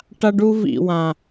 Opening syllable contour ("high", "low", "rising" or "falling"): high